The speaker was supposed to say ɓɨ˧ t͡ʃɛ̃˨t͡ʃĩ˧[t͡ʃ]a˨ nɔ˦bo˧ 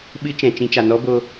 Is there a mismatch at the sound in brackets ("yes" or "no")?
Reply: no